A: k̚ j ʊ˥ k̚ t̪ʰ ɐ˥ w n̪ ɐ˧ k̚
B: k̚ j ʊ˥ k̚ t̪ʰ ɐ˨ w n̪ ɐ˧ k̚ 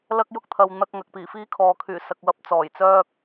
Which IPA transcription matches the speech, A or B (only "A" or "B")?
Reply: B